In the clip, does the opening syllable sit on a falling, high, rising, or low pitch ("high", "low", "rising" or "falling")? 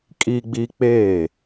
high